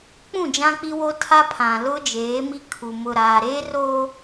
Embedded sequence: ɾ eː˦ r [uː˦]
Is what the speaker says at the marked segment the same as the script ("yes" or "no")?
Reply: no